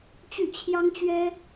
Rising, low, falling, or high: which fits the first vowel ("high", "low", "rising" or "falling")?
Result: falling